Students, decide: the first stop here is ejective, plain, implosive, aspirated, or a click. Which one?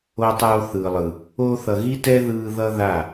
plain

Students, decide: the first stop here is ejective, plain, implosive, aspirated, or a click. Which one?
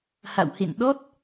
implosive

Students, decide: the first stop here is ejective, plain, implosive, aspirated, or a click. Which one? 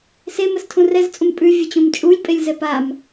aspirated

